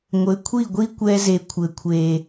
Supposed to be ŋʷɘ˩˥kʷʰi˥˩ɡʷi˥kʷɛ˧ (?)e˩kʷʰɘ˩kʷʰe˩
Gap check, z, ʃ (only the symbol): z